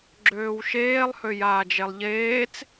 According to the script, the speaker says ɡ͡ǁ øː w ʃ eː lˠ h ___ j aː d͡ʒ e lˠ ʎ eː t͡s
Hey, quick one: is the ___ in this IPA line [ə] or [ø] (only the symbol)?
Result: ø